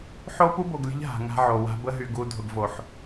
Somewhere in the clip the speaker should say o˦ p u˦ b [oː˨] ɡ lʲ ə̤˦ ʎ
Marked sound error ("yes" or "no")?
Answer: yes